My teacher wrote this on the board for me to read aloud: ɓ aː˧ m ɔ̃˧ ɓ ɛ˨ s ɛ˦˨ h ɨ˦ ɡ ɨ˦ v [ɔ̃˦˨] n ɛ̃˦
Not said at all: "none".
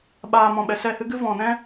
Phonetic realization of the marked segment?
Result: ɔ̃˦˨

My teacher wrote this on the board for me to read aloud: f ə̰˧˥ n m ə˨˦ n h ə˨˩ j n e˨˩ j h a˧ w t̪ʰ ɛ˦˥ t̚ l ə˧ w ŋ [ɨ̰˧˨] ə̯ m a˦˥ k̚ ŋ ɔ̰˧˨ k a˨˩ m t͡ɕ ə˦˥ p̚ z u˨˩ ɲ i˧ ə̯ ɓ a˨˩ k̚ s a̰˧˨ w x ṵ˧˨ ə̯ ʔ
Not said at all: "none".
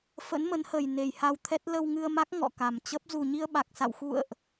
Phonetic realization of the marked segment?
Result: ɨ˧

